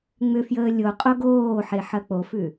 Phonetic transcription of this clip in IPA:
ŋ͡mʏfjəː lʲo qʼoɡoːħe ħɐk͡pofʉ

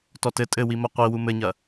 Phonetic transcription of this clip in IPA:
tɔtɘ tʼɘwimɐ qʷi wumɘɲɐ

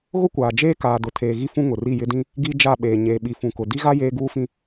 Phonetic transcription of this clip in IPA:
ɣʊ˦kʷaː˨ d͡ʒeː˦kaː˨dʊ˨ tʰeː˨ɣi˦ fũ˦ŋʊ˨ ri˦˨jɪ˦dĩ˦ | ɡi˦ d͡ʒa˦˨ɓeː˨ ɲeː˨ɓi˨fũ˨kʊ˨ di˦ɣa˦ jeː˦ɡuː˦fĩ˦

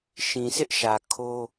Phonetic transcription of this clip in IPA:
ʃĩ˨sɪ˦ʔʃä˨ kʰo˦

